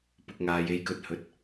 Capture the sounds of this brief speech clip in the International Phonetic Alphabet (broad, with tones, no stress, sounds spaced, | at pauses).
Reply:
p ʊ˨ k̚ ŋ aː˨ j e˨ j k ɵ˨˥ t̚ h ɵ˨˥ t̚